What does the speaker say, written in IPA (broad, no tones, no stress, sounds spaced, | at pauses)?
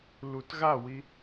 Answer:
l u t ɣ a w i